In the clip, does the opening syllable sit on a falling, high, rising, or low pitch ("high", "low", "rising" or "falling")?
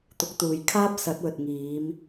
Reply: rising